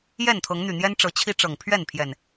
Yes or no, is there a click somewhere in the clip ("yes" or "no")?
no